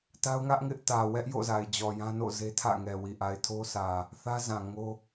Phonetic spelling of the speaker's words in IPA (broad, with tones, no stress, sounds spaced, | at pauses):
t a˦ ʊ̯ ŋ ä˦ ʔ ŋ ɪ˦ ʔ t ä˨ w ɛ˦ ʔ j o̰˦˨ z a˨ ɪ̯ d͡ʑ ɔ˨ j ã˦ n o̰˦˨ z e˦ tʰ ä̰˦˨ ŋ ɛ˨ w i˨ ʔ a˨ ɪ̯ tʰ o˦ sʰ ä˨ | θ ä˦ z ã˨ ŋ o˦